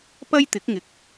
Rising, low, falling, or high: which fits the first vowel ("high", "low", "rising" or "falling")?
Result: high